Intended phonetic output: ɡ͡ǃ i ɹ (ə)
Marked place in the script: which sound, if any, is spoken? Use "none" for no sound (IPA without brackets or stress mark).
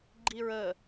ə